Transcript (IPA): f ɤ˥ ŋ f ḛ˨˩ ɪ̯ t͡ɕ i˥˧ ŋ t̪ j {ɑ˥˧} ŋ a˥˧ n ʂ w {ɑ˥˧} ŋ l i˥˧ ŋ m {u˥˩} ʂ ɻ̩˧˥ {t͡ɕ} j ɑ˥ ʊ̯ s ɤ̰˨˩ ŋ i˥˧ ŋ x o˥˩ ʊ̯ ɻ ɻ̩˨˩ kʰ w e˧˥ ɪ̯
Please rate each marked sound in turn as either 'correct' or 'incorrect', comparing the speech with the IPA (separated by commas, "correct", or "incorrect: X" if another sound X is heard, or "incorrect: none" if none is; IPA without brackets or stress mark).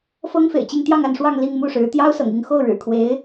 correct, correct, correct, incorrect: t̪